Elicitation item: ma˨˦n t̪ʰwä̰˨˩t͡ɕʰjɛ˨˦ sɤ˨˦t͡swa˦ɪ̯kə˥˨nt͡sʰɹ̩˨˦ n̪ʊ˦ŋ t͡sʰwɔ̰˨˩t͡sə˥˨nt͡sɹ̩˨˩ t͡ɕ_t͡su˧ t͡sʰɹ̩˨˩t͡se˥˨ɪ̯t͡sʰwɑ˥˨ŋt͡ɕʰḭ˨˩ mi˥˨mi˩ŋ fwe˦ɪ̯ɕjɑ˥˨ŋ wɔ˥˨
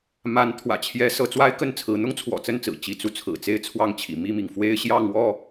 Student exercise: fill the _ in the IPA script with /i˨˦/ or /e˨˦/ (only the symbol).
i˨˦